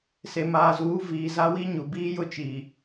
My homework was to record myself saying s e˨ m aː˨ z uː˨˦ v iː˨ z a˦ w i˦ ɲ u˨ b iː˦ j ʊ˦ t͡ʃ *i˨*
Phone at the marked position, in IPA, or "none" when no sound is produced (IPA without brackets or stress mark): iː˨